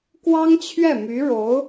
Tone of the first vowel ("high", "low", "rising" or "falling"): high